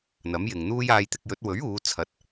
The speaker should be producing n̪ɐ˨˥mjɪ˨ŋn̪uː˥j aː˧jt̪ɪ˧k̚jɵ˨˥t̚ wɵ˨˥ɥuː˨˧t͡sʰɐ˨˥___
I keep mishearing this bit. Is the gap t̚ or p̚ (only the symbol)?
t̚